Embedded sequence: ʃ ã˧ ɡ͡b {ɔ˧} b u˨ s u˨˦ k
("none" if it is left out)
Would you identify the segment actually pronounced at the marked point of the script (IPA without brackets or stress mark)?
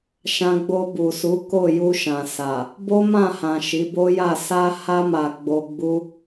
o˧